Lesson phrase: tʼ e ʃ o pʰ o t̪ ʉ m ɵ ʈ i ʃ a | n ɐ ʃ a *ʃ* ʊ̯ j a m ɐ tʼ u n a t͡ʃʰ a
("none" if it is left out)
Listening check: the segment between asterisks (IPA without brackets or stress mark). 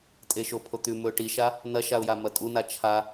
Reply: none